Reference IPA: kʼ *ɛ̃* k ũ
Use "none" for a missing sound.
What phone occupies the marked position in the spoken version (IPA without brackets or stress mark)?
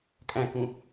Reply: æ̃